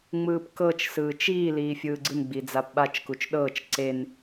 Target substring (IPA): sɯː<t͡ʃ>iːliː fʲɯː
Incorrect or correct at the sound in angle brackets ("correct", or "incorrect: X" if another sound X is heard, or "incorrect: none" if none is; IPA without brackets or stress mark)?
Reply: correct